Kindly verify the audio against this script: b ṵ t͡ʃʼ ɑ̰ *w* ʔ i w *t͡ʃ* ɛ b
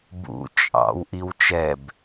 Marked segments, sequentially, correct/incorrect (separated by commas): correct, correct